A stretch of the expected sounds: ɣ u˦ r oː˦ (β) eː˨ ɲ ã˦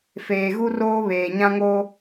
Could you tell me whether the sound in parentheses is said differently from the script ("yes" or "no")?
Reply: no